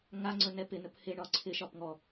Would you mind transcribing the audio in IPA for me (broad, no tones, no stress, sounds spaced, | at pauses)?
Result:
ŋ a ŋ͡ǀ ɵ n ɛ p ɪ n ɵ p h ɪ ɳ ɒ ǀʰ ɪ ʃ ɒ p ŋ ɔ